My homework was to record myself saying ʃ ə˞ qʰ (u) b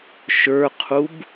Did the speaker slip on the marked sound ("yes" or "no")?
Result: no